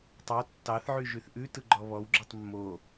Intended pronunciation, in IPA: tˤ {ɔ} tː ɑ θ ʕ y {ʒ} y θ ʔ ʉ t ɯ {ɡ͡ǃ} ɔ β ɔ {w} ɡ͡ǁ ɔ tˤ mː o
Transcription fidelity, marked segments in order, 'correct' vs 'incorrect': incorrect, correct, correct, correct

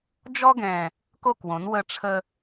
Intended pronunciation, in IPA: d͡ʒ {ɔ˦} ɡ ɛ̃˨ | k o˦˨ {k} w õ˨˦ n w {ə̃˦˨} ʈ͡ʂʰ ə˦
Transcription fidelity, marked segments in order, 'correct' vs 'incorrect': correct, correct, incorrect

